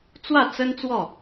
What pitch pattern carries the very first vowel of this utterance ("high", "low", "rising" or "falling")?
falling